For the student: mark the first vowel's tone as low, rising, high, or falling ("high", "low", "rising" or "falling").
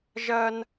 high